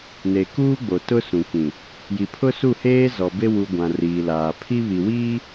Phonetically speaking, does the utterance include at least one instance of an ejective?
no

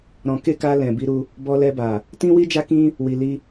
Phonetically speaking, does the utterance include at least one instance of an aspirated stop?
no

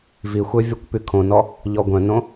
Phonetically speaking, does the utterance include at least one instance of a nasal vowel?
yes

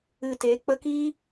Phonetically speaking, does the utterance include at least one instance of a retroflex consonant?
no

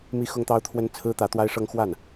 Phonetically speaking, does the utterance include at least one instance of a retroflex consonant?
yes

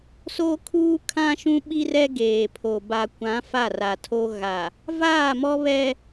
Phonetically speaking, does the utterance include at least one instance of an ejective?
no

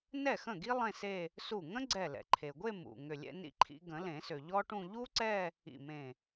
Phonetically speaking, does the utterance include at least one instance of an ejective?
no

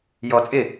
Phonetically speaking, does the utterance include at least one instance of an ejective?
yes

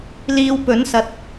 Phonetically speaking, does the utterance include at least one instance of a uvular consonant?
no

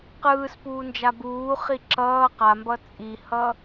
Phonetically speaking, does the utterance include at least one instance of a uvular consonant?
yes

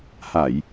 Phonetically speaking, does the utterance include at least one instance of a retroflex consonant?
no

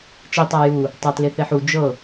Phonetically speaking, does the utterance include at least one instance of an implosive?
no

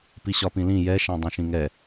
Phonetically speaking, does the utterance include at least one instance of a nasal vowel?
yes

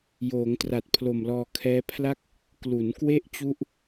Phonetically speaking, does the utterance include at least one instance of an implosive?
no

